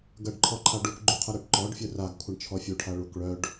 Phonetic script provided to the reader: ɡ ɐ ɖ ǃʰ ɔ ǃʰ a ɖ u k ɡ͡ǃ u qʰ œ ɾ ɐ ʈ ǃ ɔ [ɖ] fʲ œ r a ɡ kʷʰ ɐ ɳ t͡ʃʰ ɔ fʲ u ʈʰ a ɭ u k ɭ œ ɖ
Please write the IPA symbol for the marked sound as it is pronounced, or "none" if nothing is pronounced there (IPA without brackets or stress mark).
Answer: ɖ